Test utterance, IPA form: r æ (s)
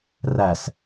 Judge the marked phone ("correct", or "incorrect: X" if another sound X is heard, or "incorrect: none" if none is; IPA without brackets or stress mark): correct